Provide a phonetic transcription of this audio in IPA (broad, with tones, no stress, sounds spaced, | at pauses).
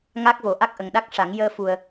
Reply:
ŋ a˦˥ k̚ v o˨˩˦ ʔ a˦˥ k̚ ʔ ə˨˩ ŋ ɗ a˦˥ k̚ ʂ a˨˩˦ ŋ j əː˧ f u˨˩ ə̯